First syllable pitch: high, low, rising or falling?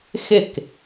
falling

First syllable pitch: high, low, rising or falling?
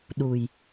low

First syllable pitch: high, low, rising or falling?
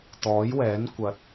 rising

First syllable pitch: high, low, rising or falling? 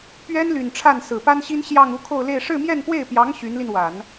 high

